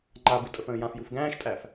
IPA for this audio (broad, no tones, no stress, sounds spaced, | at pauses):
ŋ͡ǃ a b u tʼ ə f ə̃ː j ã f j u f ɡ æ̃ː ʃ tʼ æ f